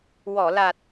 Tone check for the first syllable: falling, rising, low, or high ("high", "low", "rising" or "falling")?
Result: low